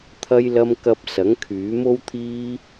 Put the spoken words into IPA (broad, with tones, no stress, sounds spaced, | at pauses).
t̪ʰ ɐ˥ j l ɐ˥ m k ɐ˧ p̚ s ɐ˨˥ ŋ kʰ yː˨˥ m o˥ w t̪ʰ iː˥